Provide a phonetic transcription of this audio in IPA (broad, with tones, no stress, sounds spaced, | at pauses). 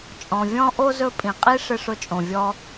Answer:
t͡ʃʼ ɔ̃˨ vʲ ɔ̃˥ ʔ o˥ z ɵ˦ pʼ ĩ˨ qʼ i˥ ʂ ɪ˥ ʂ ʊ˥ t͡ʃʼ õ˨ vʲ ɔ˥